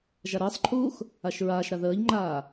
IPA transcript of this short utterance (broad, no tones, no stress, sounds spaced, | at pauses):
ʒ a ɾ əː sˤ ǃʰ uː x | a ʃ ɹ aː ʃ ɾ a ð əː ʎ ŋ͡ǃ aː